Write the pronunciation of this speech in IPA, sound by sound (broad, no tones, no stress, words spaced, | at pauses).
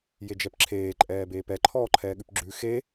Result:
jed͡ʒɛpǁʰeː ǃʼɛːbeːpɛ ǃʰɔːǃʰɛːɠʉpɡ͡ǁʉ xe